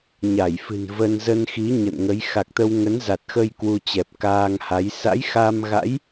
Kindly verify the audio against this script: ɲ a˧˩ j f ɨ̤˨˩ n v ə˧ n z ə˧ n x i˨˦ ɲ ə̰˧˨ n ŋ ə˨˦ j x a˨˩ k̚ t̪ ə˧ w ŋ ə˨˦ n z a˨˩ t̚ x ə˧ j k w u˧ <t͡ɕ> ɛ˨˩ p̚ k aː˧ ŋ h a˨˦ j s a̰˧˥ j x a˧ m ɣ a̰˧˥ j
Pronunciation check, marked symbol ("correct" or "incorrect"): correct